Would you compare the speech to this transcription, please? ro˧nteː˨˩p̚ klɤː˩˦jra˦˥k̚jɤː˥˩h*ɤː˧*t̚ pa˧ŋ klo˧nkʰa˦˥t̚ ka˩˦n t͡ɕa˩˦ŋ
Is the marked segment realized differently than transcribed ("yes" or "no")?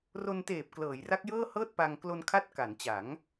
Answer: yes